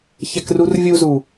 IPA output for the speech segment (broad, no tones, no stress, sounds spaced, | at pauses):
ç ɛ k r u r vʲ u z u